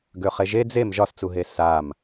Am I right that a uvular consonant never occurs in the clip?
no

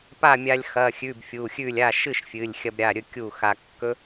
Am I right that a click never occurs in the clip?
yes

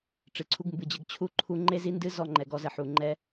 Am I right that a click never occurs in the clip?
no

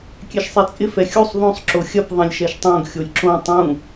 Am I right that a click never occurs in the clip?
no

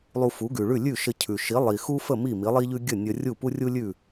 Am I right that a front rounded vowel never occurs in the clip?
yes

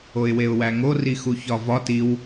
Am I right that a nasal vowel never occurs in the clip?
yes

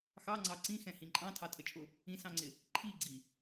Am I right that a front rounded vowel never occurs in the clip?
yes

